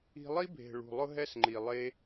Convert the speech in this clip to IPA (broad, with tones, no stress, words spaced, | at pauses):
i̤˧ lˠi˦bʱe̤˨ ɭṳ˨lˠʊ˦ɦɛ˦sŋ͡ǃi˨ lˠe˦